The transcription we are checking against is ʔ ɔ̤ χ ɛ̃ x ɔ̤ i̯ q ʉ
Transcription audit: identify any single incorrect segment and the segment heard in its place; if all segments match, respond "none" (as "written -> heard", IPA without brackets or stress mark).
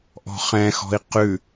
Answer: none